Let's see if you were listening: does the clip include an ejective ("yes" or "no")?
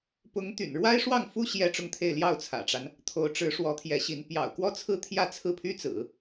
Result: no